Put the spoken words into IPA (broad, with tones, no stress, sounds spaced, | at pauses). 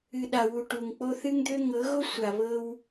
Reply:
ɨ˨ ɗ a˨ w u˨ ʈ u˨ ŋ k͡p o˦ θ ɨ˦ ŋ d̪ ø˦ ŋ ɤ˨˦ ɣ o˦ sʷ a˨ β ɤ˦ w